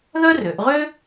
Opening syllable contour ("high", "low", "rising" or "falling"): high